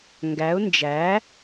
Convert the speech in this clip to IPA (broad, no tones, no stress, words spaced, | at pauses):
ŋɡæʊ̯ nd͡ʒæ